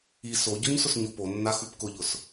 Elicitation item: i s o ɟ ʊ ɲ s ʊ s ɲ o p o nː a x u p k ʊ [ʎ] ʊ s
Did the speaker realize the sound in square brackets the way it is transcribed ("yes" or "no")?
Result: yes